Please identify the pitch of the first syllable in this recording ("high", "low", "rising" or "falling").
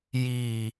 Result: low